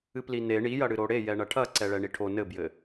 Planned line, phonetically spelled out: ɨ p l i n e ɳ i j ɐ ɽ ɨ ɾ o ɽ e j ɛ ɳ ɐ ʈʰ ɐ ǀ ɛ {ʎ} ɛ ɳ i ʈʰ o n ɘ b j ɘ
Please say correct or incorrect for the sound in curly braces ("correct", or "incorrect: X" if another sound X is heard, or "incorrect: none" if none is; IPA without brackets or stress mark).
incorrect: ɭ